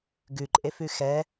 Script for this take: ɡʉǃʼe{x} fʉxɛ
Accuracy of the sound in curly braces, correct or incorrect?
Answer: incorrect